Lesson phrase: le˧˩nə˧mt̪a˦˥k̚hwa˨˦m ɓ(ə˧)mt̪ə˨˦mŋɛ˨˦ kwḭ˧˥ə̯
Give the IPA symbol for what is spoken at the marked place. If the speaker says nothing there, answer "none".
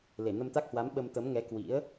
ə˧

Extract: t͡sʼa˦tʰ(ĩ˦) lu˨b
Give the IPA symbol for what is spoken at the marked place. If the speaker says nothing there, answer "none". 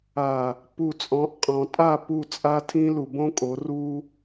ĩ˦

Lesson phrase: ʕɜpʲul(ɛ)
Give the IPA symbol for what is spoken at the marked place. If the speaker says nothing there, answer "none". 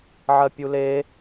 e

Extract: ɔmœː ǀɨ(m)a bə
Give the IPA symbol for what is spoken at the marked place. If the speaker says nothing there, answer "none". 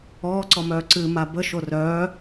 m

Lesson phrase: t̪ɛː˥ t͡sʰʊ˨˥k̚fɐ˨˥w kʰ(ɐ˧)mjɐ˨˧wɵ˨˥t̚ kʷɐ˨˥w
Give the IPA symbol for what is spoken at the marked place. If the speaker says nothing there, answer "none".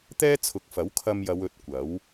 ɐ˧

